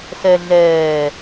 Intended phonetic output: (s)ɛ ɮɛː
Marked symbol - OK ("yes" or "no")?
yes